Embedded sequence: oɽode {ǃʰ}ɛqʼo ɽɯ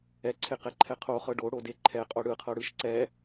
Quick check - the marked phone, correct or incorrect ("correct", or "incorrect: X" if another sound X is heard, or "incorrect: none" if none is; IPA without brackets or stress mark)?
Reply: correct